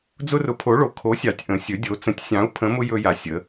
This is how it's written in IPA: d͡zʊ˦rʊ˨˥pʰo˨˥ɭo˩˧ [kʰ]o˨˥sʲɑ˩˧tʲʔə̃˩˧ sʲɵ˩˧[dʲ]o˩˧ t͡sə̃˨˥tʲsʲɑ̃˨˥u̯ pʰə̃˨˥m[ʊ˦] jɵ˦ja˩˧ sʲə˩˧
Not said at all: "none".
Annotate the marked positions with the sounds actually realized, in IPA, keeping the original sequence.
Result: kʰ, dʲ, ʊ˦

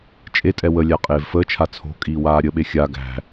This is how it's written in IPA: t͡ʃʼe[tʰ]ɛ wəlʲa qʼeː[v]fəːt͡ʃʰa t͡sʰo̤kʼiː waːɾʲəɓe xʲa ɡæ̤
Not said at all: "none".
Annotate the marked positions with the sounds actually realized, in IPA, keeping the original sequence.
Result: tʼ, v

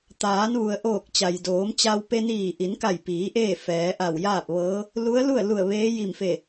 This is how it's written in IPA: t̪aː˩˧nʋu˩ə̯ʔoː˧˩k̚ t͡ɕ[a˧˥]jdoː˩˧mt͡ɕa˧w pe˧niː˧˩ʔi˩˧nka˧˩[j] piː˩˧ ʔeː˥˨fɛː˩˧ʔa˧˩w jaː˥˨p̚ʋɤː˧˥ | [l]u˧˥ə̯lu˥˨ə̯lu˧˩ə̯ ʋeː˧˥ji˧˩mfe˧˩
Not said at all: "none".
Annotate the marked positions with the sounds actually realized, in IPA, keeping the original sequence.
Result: a˩, j, l

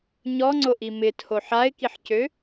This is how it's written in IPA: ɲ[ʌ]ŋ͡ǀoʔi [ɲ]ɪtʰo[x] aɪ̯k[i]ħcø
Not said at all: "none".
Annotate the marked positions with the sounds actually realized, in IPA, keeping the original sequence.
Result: ɔ, m, ħ, i

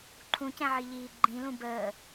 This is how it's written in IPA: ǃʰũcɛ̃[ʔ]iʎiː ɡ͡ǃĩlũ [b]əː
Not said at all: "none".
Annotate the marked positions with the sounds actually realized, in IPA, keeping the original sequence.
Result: ʕ, b

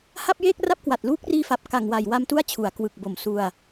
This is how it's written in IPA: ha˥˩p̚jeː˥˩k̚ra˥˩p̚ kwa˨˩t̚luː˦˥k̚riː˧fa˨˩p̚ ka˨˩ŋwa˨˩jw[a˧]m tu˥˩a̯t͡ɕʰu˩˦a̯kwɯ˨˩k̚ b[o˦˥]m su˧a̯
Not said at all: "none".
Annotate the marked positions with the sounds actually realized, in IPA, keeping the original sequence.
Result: a˧, o˨˩

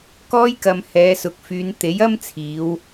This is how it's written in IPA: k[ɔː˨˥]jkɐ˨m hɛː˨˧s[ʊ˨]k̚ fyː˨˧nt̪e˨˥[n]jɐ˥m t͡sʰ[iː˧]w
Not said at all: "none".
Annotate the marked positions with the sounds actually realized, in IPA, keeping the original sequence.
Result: ɔː˧, ʊ˨, none, iː˨˧

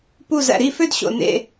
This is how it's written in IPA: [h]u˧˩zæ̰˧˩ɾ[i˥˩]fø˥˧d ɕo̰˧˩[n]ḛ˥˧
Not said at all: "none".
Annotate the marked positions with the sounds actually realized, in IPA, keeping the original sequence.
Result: p, i˥˩, n

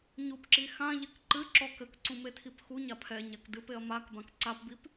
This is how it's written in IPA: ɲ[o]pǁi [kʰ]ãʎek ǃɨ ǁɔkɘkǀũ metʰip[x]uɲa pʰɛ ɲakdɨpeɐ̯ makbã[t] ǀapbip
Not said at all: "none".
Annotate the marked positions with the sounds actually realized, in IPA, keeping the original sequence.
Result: u, x, x, k

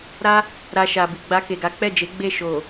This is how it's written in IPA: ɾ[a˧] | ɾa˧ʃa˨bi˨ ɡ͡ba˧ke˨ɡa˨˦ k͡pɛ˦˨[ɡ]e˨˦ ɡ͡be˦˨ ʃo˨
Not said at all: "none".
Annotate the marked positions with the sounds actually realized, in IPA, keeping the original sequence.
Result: a˦, d͡ʒ

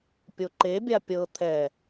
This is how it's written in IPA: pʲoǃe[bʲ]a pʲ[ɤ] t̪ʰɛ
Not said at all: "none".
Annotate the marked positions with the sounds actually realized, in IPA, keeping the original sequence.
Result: bʲ, ɤ

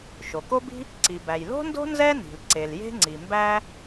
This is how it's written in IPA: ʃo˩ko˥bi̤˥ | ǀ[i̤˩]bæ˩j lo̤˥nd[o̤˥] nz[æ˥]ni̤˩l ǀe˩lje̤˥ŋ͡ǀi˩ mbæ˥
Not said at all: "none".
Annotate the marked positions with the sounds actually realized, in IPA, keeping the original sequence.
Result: i˩, o̤˥, ɛ˥

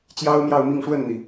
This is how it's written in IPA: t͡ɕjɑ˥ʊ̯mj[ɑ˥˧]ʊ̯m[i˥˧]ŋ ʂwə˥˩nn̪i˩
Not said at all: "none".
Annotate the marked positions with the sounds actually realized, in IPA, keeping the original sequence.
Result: ɑ˥˧, i˥˧

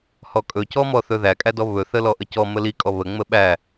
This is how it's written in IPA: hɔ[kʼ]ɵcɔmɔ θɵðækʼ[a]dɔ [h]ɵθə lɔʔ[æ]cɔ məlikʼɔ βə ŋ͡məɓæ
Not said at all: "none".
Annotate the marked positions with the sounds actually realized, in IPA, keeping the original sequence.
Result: kʼ, æ, β, ə

